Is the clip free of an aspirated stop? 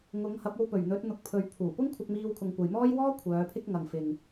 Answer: no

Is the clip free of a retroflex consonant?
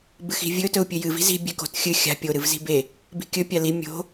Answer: yes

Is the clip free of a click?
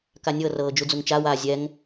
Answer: yes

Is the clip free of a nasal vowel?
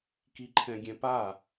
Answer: no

